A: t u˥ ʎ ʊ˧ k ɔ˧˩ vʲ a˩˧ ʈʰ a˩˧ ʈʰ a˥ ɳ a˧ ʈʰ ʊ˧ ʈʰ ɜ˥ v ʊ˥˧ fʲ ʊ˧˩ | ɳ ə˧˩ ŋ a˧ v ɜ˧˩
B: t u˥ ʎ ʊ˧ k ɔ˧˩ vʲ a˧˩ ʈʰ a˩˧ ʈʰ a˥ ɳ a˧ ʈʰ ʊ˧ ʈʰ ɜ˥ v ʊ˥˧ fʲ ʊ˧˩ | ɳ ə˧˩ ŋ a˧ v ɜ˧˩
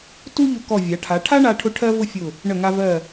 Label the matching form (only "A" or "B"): A